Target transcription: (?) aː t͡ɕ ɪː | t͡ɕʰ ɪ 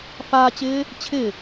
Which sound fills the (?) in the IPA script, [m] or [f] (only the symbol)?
f